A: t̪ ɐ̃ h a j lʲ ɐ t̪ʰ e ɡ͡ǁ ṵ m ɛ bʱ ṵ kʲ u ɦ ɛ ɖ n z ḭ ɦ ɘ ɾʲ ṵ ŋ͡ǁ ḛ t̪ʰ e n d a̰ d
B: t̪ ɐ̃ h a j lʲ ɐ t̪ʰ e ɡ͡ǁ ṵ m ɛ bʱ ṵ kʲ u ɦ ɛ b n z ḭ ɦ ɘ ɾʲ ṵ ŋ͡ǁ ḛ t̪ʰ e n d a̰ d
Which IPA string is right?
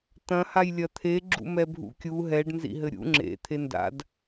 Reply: A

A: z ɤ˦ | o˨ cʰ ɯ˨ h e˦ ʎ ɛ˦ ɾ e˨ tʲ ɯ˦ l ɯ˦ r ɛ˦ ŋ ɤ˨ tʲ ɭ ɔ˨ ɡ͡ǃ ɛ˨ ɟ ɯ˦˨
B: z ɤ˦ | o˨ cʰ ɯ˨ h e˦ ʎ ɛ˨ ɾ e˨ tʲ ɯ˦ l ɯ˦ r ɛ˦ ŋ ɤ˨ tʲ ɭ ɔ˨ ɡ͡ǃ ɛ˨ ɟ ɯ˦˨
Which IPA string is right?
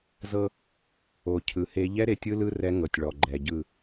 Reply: A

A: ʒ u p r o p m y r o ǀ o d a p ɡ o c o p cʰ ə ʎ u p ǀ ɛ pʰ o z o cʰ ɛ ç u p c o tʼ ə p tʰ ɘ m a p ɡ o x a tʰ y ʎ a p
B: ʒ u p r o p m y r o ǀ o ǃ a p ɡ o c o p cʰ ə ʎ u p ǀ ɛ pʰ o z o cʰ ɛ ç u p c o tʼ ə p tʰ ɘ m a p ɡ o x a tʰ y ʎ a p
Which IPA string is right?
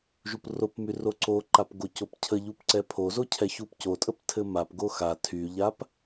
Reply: B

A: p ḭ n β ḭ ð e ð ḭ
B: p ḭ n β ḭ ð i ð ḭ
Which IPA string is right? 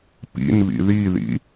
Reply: B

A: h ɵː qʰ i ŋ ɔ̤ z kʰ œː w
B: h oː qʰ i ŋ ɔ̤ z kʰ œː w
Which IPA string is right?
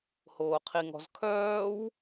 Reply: B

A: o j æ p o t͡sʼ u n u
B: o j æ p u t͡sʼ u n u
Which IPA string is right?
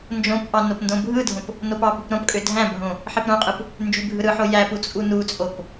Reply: B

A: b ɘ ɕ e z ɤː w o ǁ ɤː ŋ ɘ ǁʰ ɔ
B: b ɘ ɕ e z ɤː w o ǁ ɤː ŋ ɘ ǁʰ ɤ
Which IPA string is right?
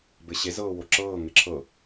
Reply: B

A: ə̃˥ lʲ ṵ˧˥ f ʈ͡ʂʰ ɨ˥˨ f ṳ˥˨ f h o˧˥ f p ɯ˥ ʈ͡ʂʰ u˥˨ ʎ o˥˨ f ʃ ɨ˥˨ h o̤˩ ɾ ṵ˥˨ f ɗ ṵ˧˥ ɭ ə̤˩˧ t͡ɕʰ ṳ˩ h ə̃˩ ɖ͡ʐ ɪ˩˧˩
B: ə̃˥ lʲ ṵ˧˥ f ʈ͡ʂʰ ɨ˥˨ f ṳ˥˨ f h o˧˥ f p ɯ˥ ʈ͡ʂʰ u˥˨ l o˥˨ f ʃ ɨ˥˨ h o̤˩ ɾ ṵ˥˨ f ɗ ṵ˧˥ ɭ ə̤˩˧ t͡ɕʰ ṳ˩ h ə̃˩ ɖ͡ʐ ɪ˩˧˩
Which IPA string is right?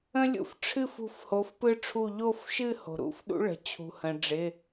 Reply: A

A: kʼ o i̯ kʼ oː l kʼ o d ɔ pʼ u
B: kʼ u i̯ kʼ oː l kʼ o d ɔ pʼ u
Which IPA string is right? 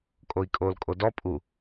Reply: A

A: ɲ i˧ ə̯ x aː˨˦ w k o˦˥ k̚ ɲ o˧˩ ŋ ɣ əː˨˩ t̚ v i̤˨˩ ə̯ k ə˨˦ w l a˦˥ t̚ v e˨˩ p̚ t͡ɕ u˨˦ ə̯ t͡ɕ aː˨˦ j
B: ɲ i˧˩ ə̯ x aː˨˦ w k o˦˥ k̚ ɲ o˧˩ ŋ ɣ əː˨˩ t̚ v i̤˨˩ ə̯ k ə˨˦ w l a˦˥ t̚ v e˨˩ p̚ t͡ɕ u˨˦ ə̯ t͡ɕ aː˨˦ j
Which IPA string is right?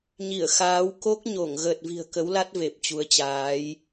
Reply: B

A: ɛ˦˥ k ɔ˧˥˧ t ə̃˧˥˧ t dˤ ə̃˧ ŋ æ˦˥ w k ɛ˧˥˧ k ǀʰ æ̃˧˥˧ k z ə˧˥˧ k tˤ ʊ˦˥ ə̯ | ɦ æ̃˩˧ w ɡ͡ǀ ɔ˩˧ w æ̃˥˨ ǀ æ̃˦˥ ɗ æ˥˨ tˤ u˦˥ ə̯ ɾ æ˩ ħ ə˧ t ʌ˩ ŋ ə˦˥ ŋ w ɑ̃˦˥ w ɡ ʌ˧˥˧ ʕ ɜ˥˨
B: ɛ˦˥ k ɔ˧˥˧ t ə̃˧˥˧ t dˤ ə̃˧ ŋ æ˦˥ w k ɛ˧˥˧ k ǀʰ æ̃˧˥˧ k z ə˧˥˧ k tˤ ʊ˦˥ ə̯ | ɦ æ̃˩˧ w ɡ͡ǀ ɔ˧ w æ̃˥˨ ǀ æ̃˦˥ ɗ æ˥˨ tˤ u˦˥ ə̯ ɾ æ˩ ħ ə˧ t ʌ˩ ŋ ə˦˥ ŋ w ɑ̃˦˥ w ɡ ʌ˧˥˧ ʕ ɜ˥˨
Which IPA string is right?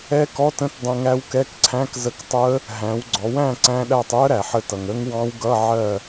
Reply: A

